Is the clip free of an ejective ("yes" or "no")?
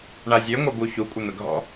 no